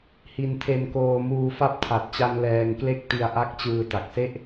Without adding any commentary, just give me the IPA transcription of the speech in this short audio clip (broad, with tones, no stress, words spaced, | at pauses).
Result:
hi˧ntʰe˧nkoː˧ muː˧fa˦˥p̚tʰa˨˩t̚t͡ɕa˧n lɛː˧ŋkle˥˩k̚ ti˧a̯ʔa˦˥k̚t͡ɕɯː˧ ta˨˩k̚se˥˩ʔ